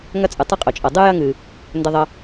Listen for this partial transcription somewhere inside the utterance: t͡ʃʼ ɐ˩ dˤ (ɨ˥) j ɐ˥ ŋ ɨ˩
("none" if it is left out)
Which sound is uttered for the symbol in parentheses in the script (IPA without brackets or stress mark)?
ɨ˥